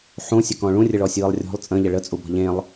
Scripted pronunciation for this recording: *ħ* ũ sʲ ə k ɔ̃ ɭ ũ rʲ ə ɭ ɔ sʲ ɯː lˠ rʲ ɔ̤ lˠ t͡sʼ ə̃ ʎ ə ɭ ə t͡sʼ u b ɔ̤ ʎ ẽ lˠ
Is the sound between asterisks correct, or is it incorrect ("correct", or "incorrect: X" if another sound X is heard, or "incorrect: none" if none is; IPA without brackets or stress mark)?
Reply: correct